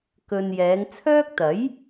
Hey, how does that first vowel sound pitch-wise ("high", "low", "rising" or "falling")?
low